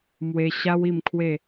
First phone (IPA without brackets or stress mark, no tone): m